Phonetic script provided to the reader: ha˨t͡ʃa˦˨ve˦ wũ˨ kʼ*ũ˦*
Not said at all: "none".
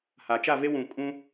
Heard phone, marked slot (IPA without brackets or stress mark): ũ˦